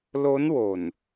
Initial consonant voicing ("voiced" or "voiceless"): voiced